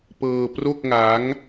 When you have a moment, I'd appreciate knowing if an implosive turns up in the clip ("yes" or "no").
no